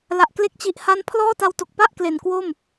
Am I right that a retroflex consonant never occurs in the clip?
yes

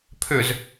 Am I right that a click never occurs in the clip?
yes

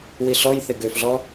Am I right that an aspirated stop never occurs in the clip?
yes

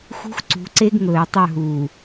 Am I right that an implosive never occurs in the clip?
yes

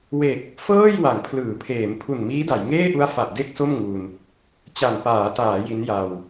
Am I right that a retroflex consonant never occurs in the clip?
yes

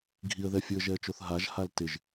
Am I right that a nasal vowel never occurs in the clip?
yes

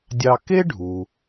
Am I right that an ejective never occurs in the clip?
yes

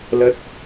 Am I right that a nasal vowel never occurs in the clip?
yes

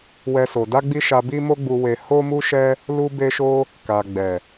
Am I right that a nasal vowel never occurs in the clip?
yes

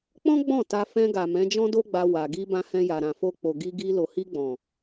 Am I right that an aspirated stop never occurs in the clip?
yes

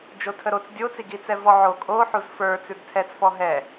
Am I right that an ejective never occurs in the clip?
no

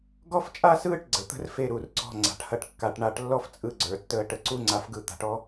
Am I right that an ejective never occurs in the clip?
no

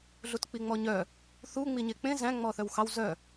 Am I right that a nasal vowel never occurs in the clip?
no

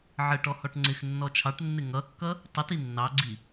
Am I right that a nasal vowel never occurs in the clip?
yes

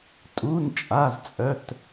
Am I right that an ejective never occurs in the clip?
no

